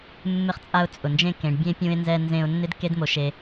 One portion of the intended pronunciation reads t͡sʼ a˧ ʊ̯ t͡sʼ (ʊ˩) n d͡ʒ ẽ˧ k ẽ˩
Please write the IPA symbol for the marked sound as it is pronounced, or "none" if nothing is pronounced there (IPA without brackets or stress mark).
ʊ˩